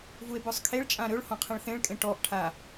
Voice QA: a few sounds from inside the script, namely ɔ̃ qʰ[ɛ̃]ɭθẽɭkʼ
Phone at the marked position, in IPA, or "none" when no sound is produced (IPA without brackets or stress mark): ẽ